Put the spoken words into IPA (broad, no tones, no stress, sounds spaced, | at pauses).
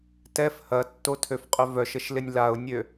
t ɛ f h ɐ tː o tʰ ø f qʼ ʏ v œ ʃ ə ʃ l ɪ nʲ l a ʊ̯ nʲ ø